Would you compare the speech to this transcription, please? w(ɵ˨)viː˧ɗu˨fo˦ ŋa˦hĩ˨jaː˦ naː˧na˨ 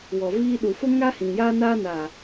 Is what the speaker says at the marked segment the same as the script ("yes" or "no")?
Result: no